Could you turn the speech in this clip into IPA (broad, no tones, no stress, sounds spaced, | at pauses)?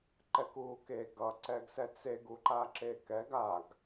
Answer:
ǃ ɛ k uː k e ɡ ʌ ǀ ɛ ɡ s ɛ t͡s e ɡ u ǃ a ǁ e k ɛ ɡ a ɡ